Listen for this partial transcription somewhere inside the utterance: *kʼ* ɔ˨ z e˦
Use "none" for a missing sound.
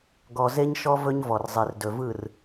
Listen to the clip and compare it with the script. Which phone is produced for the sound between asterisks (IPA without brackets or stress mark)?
ɡ